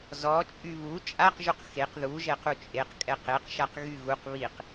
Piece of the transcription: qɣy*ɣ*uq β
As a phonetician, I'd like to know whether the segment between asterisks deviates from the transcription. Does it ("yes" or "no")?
no